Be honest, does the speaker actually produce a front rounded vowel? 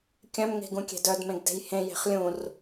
yes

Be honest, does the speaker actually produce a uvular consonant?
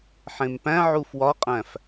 yes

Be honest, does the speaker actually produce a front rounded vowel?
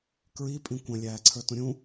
no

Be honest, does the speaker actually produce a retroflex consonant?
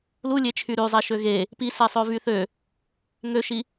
no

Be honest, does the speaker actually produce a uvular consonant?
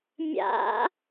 no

